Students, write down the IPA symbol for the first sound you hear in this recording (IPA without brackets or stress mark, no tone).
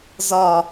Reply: z